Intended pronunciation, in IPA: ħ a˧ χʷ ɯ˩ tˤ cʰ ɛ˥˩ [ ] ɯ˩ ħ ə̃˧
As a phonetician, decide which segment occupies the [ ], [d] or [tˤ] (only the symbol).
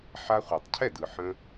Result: d